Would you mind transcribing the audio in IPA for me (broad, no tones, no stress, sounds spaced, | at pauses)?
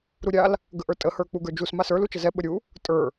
ɾ u ɾʲ a l | ɡ ə ʔ ə˞ tʼ ə h ə˞ k͡p u ɡ ə˞ d͡ʒ u s m a s ə˞ l u t͡ʃ ə z ɛ ɓ ə ɾʲ u | tʼ ə˞